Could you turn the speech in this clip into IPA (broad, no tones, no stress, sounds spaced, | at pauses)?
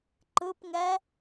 ǃ ɯ p ŋ ɛ